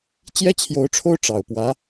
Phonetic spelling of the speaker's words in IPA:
t͡ɕjɛ˥t͡ɕʰjo˧˥ʊ̯ʈ͡ʂʰo˥ʊ̯ ʈ͡ʂɑ˨˩ʊ̯pwä˧˥

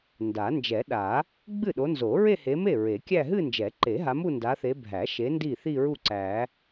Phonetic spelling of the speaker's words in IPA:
nda˨˩˦ nd͡ʒɛ˨˩˦ɗa˨˩˦ | ɡ͡bɨ˥˩ɗo˨˦nzo˨˩˦ ɹe˥˧he˨˦me˥˩ ɹe˨˩˦kʲæ˥˧ ɦɨ˥˧nd͡ʒɛ˨˩˦ǃe˨˩˦ ɦa˨˦mu˥˧nda˨˦θe˨˦ bʱæ˨˩˦ʃe˨˦ ndi˥˩θi˥˧ɹu˥˩ ǀæ˨˩˦

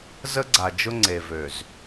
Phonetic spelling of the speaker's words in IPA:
zə˦ɡ͡ǀa˨d͡ʒʊ˦ŋ͡ǀe˨ vø˨z

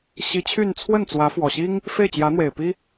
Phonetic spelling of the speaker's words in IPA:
ɕi˧˥t͡ɕʰy˥˧n t͡sʰwə˥˩n t͡swä˧˥fwɔ˨˩ɕi˥ŋ | fe˥˩ɪ̯t͡ɕjä˧˥n̪we˨˩ɪ̯ pi˥

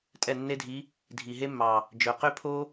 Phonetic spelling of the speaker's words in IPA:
tʼɛ˥˩nːe˥dʱi˧˥ | dʱi˨˩ɦe˥mːɑ˨˩ | d͡ʒœ˨˩ qø˥pʰo˥

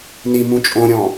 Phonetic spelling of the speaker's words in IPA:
nimũ t͡ʃʼõɾʲɔ̃

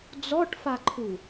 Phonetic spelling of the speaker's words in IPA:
d͡zɔʈfaǃʰu

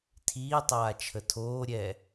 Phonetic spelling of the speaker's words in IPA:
tʰiːtˤaː t͡ʃʰətʰoːɾʲɛ

